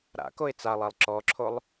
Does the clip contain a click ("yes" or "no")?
yes